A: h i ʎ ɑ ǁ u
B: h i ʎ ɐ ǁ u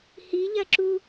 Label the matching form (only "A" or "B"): B